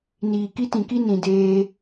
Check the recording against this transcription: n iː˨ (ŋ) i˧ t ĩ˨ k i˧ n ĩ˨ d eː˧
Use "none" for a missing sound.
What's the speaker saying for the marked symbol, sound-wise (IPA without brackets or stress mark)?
k